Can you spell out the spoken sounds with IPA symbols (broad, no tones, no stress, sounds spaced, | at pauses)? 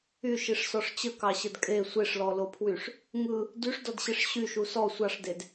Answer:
y ʃ i ʂ s ɔ ʂ t͡ɕ ə k ɑ ɕ ə d kʼ e sʷ e ʂ l ɔ l o pʰ w y ʂ | ŋ ɯ | d y ʂ d ɔ d ɕ e ʂ ɕ y ʃ u s ɔ sʷ ɑ ʂ d e d